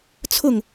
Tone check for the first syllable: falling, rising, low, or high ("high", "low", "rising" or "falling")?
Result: falling